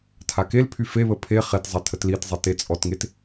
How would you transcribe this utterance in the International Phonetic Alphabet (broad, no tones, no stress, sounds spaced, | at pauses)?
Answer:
tʰ a k e l pʰ y f e β ə pʰ e χ e t zˤ ɛ tʰ ə t l i t zˤ i t e t͡sʼ ɔ t ŋ e t